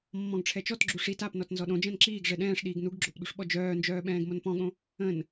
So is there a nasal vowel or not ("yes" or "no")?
yes